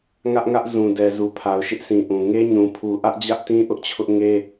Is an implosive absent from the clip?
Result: yes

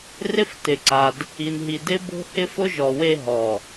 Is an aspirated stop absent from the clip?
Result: yes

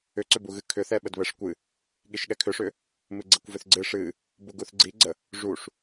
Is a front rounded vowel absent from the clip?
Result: no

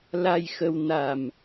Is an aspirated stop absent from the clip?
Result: yes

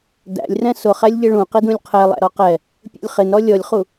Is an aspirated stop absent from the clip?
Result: no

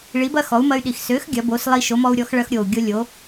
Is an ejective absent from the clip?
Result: yes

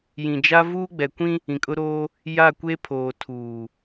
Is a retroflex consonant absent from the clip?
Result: yes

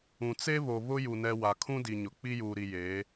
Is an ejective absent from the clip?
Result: yes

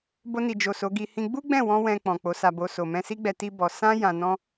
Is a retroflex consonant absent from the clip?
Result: yes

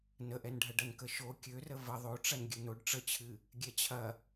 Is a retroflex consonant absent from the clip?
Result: no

